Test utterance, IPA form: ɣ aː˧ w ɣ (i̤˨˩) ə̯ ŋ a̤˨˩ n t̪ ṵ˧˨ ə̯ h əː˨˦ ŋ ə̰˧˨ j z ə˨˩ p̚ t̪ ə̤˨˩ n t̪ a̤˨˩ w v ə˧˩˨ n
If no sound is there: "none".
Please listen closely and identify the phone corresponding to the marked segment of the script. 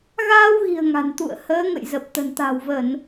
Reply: i̤˨˩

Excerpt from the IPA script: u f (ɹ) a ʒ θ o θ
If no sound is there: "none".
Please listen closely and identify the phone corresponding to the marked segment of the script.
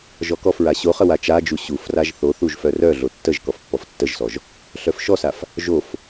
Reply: r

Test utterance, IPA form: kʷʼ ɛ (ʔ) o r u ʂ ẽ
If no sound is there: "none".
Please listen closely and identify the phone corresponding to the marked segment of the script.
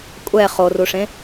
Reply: χ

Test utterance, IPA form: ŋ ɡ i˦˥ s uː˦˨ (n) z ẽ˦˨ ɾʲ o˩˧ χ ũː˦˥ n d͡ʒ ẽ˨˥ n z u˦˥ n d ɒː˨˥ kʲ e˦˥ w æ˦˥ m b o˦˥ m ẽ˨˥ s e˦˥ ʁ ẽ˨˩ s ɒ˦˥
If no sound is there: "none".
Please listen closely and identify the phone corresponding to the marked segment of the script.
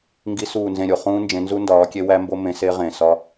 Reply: n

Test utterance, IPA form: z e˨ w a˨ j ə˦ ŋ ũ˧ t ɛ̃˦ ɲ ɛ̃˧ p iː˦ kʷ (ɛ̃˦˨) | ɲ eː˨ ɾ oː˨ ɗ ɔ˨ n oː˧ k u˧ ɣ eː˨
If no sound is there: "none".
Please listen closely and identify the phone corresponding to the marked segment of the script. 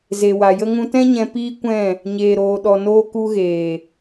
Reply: ɛ̃˦˨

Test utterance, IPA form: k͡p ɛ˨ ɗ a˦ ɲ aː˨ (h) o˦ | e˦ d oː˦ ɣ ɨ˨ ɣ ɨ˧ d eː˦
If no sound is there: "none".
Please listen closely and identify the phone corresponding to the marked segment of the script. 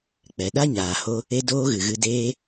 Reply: h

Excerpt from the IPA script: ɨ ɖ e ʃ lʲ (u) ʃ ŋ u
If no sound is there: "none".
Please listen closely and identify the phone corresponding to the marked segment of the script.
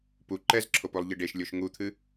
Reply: o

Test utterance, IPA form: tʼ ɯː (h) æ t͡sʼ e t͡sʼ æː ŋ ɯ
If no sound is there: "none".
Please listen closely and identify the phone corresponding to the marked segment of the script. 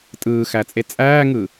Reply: x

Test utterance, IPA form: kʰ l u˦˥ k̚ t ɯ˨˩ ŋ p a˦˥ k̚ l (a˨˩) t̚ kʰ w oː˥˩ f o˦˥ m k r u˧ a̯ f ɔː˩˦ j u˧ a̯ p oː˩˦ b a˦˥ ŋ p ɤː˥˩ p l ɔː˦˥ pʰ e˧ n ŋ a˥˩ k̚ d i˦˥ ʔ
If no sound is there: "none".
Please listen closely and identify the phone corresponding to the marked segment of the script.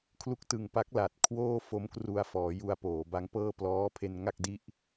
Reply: a˨˩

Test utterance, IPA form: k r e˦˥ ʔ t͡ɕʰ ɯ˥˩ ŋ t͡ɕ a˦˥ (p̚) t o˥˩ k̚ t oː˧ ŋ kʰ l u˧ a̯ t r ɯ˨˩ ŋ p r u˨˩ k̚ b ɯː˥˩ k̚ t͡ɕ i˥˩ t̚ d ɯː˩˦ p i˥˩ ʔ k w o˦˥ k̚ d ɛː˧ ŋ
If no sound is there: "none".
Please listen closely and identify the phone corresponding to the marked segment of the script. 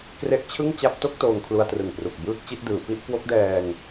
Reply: p̚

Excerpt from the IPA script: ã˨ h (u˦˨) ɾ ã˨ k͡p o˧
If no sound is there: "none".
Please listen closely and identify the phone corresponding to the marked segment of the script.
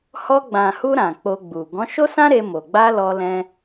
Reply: u˧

